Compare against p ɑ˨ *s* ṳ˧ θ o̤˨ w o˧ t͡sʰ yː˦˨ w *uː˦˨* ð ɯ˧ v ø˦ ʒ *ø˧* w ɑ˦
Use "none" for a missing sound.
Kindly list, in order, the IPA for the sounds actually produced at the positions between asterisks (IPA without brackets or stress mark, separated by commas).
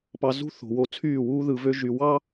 z, uː˦, y˧